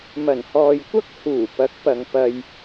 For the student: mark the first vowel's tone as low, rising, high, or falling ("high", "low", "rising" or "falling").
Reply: low